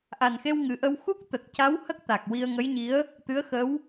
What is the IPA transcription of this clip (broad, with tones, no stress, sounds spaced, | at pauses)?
ʔ a˨˩ n x e˧ w ŋ ɨ˨˩ ʔ ə˧ w x u˦˥ k̚ t̪ ə˨˩ k̚ c a˧˥ w h ə˦˥ k̚ t̪ a˨˩ k̚ w i˧ ə̯ ŋ ə˧˥ j ɲ i˧˥ ə̯ | t̪ ɨ˧˥ ə̯ x ə˧˥ w